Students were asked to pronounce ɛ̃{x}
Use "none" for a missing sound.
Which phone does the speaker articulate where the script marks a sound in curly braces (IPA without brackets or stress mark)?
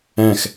x